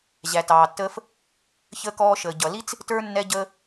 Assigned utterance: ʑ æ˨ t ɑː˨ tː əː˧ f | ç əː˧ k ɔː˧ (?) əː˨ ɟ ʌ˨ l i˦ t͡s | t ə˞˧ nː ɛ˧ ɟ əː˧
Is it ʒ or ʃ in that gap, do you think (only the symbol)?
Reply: ʃ